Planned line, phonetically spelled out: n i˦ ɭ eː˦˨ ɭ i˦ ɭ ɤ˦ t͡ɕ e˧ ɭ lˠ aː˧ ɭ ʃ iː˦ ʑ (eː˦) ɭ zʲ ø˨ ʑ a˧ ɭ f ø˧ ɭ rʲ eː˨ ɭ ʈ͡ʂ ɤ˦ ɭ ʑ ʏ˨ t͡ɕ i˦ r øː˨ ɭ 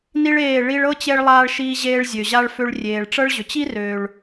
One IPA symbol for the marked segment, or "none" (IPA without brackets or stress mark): eː˦